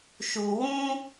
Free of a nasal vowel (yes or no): no